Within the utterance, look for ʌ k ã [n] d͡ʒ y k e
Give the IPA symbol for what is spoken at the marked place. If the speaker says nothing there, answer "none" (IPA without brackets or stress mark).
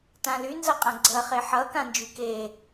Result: n